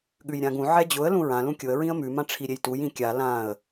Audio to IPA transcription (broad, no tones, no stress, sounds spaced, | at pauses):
ɠ ʉ j ɾʲ ã ɡ ũ ʕ ɛ d͡ʑ ʊ ə̯ l ũ ɹ ã l ũ kʲ ʊ ə̯ ɹ ĩ ə̯ m ʉ m ã ʈ͡ʂʰ i ɾʲ e j t u j ĩ kʲ a l ã ə̯